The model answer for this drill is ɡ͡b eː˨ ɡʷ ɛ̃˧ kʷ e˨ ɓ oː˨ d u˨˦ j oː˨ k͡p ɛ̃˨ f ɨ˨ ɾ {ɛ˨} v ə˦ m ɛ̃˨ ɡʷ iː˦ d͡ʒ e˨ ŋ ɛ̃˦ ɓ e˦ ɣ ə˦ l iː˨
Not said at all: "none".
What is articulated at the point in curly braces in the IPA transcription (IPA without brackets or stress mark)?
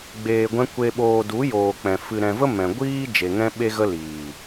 ɛ̃˨